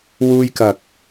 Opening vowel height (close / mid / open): close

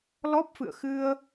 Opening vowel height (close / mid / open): mid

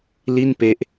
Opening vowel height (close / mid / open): close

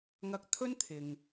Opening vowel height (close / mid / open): open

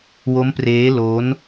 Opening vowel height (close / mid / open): mid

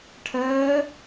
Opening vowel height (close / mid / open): mid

